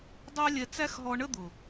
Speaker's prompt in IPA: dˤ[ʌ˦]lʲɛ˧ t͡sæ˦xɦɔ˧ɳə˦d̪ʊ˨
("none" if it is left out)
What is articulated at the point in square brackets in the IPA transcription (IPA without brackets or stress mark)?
ɑ˦